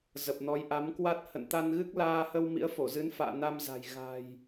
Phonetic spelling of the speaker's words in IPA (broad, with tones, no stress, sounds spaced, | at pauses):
z ə˨˩ p̚ n ɔ˨˦ j ʔ a˨˦ m k w a˦˥ t̚ h ə̰˧˨ n t̪ a˧ n ɣ ɨ˦˥ k̚ l aː˧ h ə˧ w m ḭ˧˥ ə̯ f o˧˩ z ɨ˨˦ n f a̰ː˧˨ n a˧ m z a̤˨˩ j ɣ a̤˨˩ j